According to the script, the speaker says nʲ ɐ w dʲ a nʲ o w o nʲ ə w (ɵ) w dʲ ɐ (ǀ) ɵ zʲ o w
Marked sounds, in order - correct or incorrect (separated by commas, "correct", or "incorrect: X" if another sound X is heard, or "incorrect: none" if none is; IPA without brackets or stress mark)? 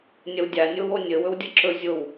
correct, incorrect: ǁ